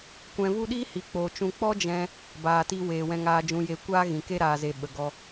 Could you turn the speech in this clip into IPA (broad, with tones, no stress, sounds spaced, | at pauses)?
kʷ ɛ̃˧ v u˦ ɗ iː˦ h i˨ k͡p o˨ t͡ʃ ũ˧ k͡p ɔ˦ d͡ʒ ɛ̃˧ | b aː˨ t i˧ w eː˨ w ɛ̃˧ ŋ aː˧ d͡ʒ ũ˧ j e˧ kʷ aː˦ ɣ ĩ˨ k e˦ ɾ aː˧ z e˧ ɓ ə˨ ɡ ɔ˧